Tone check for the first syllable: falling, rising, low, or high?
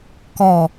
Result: falling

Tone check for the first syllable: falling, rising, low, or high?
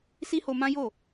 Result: high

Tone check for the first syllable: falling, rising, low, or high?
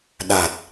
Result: low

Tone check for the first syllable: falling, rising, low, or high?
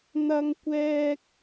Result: high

